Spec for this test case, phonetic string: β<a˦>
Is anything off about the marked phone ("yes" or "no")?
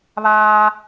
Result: yes